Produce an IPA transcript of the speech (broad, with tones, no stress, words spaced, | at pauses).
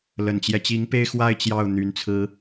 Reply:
lə˨˩nt͡ɕjɛ˦ t͡ɕi˧˥ŋpe˥˧ɪ̯xwa˥˧ɪ̯ t͡ɕjɑ˥˩ʊ̯ n̪y˧˥nt͡sʰɹ̩˥